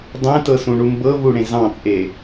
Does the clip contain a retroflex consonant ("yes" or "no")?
yes